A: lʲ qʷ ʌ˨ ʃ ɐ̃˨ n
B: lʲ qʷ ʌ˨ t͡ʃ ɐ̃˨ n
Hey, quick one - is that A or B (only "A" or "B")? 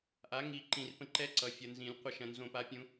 A